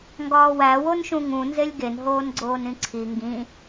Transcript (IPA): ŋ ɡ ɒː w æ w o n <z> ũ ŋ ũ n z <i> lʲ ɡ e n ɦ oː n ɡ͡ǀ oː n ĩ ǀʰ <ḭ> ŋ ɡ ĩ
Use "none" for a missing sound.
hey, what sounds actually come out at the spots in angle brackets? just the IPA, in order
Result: ʃ, e, i

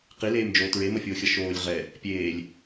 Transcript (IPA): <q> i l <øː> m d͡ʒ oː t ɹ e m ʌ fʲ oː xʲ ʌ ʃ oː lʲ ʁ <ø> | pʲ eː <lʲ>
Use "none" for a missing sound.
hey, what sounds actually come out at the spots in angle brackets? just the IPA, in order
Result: q, eː, ɛ, lʲ

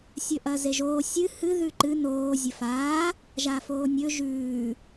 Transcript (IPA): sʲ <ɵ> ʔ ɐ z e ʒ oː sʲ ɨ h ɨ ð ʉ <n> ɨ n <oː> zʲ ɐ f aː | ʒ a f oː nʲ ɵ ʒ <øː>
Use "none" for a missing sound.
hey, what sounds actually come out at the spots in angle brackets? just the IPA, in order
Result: ɵ, ǃ, oː, ʉː

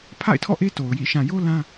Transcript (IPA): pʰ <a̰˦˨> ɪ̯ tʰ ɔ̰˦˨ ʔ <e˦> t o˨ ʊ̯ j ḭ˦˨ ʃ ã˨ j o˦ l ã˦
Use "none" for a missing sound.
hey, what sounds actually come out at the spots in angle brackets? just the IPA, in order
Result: a̰˦˨, e˦

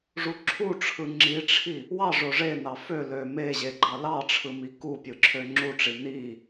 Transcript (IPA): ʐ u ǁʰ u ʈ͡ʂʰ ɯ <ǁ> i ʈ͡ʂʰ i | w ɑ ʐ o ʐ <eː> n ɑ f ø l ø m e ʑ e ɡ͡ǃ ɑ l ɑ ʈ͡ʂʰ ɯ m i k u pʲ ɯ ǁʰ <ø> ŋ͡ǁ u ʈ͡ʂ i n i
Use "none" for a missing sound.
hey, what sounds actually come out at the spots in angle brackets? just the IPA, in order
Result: ŋ͡ǁ, e, ø

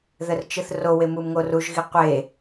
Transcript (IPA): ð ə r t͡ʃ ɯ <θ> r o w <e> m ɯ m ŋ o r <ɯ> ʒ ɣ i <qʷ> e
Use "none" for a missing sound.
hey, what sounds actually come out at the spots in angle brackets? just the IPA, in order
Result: θ, e, u, qʷ

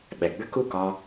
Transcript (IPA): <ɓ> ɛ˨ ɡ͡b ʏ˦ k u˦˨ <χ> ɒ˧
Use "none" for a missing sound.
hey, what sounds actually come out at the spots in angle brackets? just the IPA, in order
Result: ɓ, k

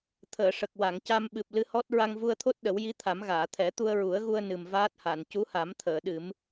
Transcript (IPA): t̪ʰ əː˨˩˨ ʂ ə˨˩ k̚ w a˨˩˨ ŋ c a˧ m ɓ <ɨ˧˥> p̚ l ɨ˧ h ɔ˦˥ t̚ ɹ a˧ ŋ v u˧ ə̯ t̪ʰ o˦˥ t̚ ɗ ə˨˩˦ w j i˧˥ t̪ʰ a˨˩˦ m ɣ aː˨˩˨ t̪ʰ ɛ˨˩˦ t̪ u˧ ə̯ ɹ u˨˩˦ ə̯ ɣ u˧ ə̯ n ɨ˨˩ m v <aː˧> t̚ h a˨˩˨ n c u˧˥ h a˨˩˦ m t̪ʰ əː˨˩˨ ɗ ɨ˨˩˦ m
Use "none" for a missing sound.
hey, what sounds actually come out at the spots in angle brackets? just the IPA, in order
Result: ɨ˨˩, aː˦˥

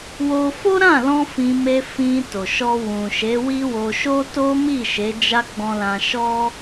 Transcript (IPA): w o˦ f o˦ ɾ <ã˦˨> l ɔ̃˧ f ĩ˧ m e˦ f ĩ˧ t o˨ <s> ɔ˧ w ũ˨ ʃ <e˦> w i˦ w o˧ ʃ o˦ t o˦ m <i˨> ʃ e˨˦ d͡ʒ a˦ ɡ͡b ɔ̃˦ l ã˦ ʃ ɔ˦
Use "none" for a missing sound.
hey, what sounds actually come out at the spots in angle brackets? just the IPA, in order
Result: ã˦˨, ʃ, e˨˦, i˦˨

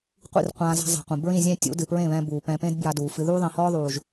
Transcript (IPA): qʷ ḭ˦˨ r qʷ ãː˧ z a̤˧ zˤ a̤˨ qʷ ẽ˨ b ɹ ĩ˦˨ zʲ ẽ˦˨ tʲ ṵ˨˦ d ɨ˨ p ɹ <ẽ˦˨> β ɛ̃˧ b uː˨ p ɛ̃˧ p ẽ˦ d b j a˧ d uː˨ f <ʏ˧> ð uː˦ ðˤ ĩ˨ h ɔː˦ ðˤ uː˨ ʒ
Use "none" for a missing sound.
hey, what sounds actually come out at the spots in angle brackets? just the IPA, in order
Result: ẽ˦˨, ɨ˧

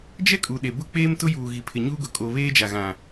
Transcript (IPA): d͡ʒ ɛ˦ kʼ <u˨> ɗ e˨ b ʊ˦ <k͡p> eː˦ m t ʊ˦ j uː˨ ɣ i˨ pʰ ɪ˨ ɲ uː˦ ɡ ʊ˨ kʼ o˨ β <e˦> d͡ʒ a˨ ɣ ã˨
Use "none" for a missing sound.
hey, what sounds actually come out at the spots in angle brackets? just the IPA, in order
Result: u˨, k͡p, eː˦

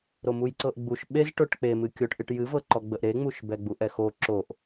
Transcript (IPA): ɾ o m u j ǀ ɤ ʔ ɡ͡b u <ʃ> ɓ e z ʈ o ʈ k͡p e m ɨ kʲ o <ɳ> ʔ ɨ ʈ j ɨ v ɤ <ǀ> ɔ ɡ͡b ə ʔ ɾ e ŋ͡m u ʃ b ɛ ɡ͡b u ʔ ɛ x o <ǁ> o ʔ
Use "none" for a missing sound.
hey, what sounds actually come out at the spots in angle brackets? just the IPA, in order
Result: ʃ, ʈ, ǃ, ǁ

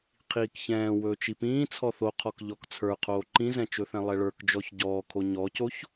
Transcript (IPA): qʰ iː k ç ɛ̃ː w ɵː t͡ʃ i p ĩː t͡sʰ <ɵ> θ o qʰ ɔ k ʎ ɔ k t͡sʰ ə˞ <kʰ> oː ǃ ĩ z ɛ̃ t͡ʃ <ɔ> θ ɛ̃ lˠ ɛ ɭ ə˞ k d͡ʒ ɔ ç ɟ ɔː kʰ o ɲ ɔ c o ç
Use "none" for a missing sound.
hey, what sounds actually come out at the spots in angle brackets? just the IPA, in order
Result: ɔ, qʰ, ɵ

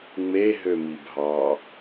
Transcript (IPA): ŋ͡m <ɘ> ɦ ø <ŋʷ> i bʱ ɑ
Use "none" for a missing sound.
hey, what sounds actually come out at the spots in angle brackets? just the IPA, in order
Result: e, m

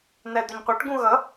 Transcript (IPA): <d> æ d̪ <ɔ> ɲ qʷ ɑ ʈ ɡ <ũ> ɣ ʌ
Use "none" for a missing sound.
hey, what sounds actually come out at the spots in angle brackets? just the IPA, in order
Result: n̪, ʊ, ũ

